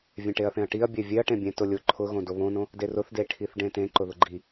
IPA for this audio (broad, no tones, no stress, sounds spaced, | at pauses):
vʲ ẽ ʈ e ɐ̯ θ ẽ ɐ̯ ʈ i ɐ̯ bʲ e vʲ e ɐ̯ ʈ ẽ bʲ ẽ t ʊ lʲ ʊ ǃʰ ʊ ɣ õ d o β õ n õ | d e r ʊ θ d e ʈʰ i θ ɖ ẽ t ẽ ǃ ʊ ð ʊ ɡ͡ǃ i